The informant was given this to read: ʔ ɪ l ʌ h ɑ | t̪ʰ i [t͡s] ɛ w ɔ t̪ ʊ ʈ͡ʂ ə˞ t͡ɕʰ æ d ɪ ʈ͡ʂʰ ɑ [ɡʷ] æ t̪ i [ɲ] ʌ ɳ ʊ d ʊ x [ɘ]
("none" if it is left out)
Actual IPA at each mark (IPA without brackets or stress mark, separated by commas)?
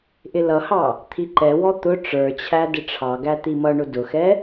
ǃ, ɡ, m, ɛ